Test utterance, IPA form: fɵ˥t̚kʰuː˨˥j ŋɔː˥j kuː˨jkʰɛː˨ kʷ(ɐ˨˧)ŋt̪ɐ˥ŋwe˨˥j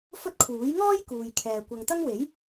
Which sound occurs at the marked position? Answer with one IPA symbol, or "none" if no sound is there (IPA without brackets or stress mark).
ɐ˨